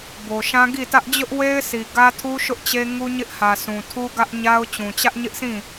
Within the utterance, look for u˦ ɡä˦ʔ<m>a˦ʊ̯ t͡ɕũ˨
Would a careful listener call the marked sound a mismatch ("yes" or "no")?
yes